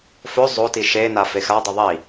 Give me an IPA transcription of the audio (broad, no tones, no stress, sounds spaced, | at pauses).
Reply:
f ɵ zˤ o t i ʃ e n a f e x a dˤ ʏ ðˤ i